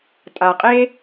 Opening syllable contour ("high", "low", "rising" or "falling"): low